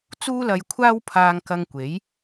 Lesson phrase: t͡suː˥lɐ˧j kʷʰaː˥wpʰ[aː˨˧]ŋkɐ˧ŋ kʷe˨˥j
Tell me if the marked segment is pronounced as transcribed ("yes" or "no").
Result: no